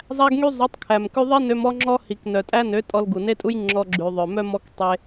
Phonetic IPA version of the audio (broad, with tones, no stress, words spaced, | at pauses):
zˤæ˧ɡŋy˧ zˤu˨˦tˤkʰæ˨mkʉ˦ ðˤe˦ nø˧m ɔ˦ŋ͡ǁɔ˦ hi˨k nœ˨tʼæ˦nø˨˦ tʼɔ˧lɡu˨ne˦tʼu˦j ŋ͡ǁɔ˧ ɡ͡ǁʉ˨ ðˤœ˨mœ˦ mɔ˦k tˤe˦